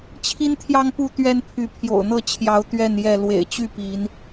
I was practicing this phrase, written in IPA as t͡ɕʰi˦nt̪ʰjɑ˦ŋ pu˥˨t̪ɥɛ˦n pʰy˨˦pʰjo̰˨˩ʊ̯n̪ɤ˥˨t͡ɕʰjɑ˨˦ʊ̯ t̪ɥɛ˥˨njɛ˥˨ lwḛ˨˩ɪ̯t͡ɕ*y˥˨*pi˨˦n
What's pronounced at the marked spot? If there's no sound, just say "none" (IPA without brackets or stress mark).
y˥˨